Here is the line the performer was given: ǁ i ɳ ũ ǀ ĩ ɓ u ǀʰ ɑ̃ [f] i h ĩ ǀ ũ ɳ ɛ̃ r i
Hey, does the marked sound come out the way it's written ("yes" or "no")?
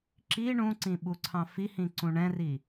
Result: yes